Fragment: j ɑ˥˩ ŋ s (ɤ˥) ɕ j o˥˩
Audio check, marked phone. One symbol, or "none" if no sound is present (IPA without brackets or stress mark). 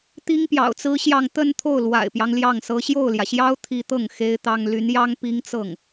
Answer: ɤ˥